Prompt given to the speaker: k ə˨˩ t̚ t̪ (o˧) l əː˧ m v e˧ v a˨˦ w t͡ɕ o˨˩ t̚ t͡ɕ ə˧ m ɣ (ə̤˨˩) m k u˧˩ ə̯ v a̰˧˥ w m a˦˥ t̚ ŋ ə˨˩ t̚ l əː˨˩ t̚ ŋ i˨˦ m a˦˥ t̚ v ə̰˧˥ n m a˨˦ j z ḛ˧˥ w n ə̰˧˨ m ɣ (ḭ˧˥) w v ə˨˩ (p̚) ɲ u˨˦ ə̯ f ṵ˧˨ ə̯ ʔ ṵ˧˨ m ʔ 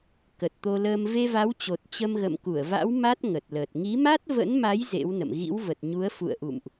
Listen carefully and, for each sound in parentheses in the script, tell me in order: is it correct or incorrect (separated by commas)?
correct, incorrect, correct, incorrect